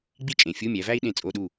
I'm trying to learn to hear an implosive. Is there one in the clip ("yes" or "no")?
yes